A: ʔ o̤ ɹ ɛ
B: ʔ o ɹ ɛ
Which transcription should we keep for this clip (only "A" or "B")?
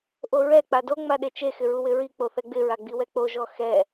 B